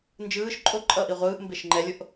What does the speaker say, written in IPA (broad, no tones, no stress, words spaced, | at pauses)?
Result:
nd͡ʒɯːʃ ǃʼo ǃʼʌʔiʁʷɯːʔ mbeʃŋ͡ǃɛlʲoʔ